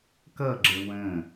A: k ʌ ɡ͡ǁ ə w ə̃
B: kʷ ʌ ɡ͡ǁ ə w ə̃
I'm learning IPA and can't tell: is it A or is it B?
A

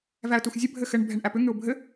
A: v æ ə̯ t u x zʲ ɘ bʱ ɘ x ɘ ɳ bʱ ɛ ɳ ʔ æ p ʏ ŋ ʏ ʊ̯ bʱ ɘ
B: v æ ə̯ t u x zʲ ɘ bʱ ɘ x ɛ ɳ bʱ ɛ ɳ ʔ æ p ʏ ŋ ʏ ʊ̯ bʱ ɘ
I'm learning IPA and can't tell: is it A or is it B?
A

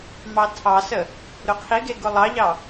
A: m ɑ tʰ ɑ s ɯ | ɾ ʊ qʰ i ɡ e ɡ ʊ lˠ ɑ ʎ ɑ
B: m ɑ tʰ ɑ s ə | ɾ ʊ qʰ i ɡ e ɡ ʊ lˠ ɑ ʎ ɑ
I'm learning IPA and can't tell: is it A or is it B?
B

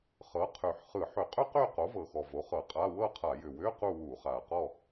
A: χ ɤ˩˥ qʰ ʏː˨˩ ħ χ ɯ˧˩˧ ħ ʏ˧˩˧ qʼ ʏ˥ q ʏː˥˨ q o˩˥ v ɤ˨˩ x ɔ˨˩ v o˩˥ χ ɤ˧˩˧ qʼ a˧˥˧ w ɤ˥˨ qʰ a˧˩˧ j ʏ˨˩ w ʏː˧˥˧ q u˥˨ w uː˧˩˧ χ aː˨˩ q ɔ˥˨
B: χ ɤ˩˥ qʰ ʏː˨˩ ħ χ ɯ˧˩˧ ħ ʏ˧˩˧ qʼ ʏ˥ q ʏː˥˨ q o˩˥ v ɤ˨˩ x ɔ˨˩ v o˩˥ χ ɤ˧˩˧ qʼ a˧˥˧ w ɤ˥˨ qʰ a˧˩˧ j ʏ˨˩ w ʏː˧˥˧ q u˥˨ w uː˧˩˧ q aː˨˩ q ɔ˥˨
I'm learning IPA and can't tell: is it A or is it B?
A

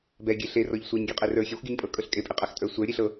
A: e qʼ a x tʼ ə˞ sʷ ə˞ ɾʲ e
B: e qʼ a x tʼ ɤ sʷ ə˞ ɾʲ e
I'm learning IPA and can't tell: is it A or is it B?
A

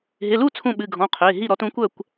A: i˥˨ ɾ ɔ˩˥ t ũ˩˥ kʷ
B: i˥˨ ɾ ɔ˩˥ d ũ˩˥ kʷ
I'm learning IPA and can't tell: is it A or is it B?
A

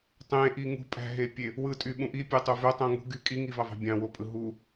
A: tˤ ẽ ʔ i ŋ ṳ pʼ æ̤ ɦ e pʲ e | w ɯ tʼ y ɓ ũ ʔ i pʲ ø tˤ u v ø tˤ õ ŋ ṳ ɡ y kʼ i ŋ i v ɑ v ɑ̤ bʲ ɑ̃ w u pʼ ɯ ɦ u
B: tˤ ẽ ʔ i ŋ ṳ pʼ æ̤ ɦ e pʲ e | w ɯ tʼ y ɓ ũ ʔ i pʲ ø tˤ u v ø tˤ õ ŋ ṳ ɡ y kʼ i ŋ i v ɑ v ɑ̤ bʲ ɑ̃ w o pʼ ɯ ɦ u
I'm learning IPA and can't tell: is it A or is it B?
B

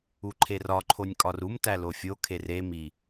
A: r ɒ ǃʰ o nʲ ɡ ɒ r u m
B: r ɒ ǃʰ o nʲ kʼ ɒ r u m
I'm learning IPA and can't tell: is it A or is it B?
B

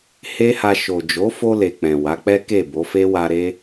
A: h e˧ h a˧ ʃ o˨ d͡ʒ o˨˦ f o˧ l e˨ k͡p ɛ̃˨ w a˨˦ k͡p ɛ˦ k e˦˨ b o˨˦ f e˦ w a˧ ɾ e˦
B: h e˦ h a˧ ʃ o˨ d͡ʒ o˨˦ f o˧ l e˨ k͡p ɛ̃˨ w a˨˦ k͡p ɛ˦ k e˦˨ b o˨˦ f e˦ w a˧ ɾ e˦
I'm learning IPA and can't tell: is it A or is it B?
B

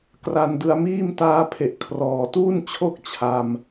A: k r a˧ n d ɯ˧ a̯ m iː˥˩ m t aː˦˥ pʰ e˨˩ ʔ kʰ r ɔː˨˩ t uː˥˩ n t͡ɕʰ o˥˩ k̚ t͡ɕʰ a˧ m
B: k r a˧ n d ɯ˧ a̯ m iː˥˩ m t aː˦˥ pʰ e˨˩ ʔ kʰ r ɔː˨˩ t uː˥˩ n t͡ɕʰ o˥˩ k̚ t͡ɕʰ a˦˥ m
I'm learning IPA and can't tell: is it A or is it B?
A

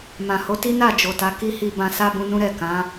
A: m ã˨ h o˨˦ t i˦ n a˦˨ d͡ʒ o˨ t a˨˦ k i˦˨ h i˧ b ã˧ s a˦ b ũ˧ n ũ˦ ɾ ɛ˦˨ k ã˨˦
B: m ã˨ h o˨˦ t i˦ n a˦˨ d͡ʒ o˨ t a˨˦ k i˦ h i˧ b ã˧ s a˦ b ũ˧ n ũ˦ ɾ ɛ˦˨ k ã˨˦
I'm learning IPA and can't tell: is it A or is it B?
B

